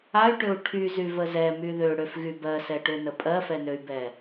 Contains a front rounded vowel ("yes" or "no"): yes